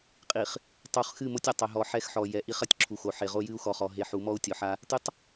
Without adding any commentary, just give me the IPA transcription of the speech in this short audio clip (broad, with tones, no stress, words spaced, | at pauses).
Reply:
qʼi˨χ | tˤu˨χ xɨ˦˨mo˦tʲɐ˨ tˤɛ˨ɦɔ˨ ħɛ˦xħɔ˨ jɛ˨ʔi˦χ ɐ˨tʲǁʰu˨xo˨ħe˨ ʁo˦jɨ˦u̯xɔ˨χɔ˨ ɦe˨ħu˨˦mɔ˦u̯ tʲɔ˨ħa˦ | tɨ˦tˤ